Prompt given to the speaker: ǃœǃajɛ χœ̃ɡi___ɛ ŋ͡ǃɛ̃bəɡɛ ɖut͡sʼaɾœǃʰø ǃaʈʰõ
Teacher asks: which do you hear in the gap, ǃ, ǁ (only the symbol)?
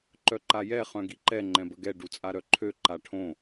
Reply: ǃ